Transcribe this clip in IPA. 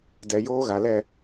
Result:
d ɛ˨ j oː˦ ɣ a˨ l ɛ˦˨

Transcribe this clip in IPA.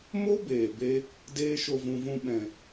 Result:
m o˦ b eː˨ b e˦ | d eː˦ ʃ o˧ v ũ˧ v ũ˧ ɓ ɛ̃˨

